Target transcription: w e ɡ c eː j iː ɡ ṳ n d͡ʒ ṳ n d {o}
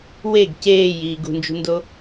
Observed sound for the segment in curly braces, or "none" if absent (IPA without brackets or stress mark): o